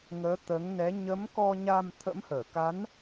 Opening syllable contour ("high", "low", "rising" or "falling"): rising